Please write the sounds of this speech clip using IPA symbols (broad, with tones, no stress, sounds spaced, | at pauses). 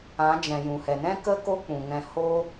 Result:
ã˨˦ d͡ʒ ɛ̃˨ j ũ˨ h ɛ˨ n ɛ̃˦ k ə˦ k o˦ k͡p ũ˨ ŋ ɛ̃˧ h o˦